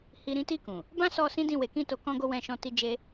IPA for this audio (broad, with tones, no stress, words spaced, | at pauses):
hi˧ ɾĩ˦ti˦˨ kũ˨ | bã˦sɔ˧ sĩ˦dĩ˦˨we˨˦kĩ˦˨ to˧ kɔ̃˦ɡo˦ wɛ̃˧ʃɔ̃˧ ti˧d͡ʒe˧